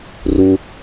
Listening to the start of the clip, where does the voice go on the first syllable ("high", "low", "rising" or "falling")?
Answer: high